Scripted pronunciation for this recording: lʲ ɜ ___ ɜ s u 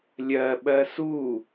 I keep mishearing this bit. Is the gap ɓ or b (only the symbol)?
ɓ